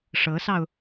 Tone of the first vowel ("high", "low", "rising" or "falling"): rising